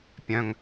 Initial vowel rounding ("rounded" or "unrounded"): rounded